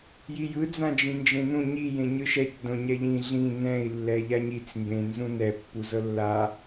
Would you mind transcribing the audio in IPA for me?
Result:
j i j ɯ d͡z ã d͡ʒ ĩ n d͡ʒ ẽ n ũ ɲ i j ẽ ɲ ɯ ʃ ɛ c d õ ɲ ɛ ʎ ĩ ɮ ĩ n ɛ̃ i̯ lː ɛ ʎ a ɲ i t͡s m b ẽ n z ũ n ɛ pː u z ɤ lː a

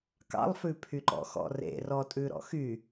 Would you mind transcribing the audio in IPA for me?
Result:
k ɑ̰ lˠ f ʉ pʰ y ǃ ɔ̰ x ɔ̰ r ḛ r ɔ tʼ ʉ ɾ ɔ̰ x y

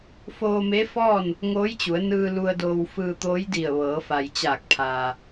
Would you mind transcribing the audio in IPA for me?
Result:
f oː˧ m e˧˥ f ɔː˥˨ n | ŋ oː˧˥ j t͡ɕ u˩˧ ə̯ n ɯː˧ l u˧ ə̯ d oː˧ w f ɯː˧ t̪ oː˧˥ j d i˧˩ ə̯ ʋ ɤː˩˧ f a˩ j t͡ɕ aː˧˩ k̚ pʰ aː˩

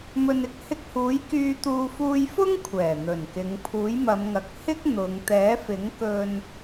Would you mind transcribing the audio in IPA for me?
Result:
m ɵ˨ n ɪ˥ k̚ h ɪ˧ k̚ h uː˨˥ j k yː˧ t̪ uː˧ f uː˧ j f ʊ˥ ŋ kʷʰ ɛː˨˩ n̪ ɵ˨˩ n k ɪ˨˧ ŋ pʰ uː˨˥ j m ɐ˨˧ m ŋ ɐ˨ k̚ h ɪ˥ k̚ n̪ ʊ˨˧ ŋ t̪ ɛː˨˥ f ɪ˨˥ ŋ k ɵ˧ n

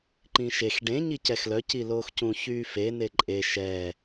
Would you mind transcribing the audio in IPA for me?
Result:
ǃ ĩ ʃ e x ɖ ẽ ɲ i c ɛ x l œ c i l oː x c ũ ç yː f e n e ǃʼ e ʃ ɛː

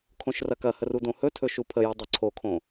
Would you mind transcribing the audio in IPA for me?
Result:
kʰ õ ʃ r ɐ k ɐ h ə r u d õ h ɵ tʰ ɵ ʃ u pʰ ə j u dˤ ɐ ǀʰ o kʰ õ

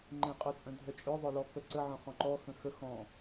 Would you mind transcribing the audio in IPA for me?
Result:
ŋ͡ǃ ẽ qʼ œ t͡sʼ œ̃ dʱ œ t͡ʃʼ œ ðˤ œ l ɔ k œ ǀ ə ʕ œ̃ χ ɔ̃ ǃ ɔ x ə̃ x ə x ɔ̃

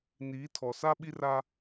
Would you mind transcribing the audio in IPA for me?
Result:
n iː˨˦ tʰ ɔ˨ s a˦ ɓ i˦ r a˦

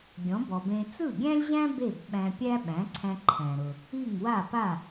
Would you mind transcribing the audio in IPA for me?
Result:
ɡʲ ɔ̃˩˥ b ɔ˩ b ẽ˧ t͡s ɯ˥˩ ɡʲ æ̃˥ lʲ ʑ æ̃˥ b e˥˩ b ɓ æ̃˧ pʲ æ˥ ɓ æ̃˩˥ ǀʰ æ̃˧ ǃʰ æ̃˩ ɾ ʊ˩ | i˥˩ ŋ w a˥˩ p a˥˩

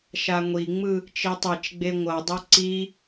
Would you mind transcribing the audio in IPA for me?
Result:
ʃ a ŋʷ i ŋ͡m ɯ | t͡ʃ i tˤ ɛ t͡ʃ ɡ͡b e ŋʷ ʌ dˤ ʌ ǀ i

